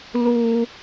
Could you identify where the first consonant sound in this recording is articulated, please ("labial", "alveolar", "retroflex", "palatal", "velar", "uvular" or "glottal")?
alveolar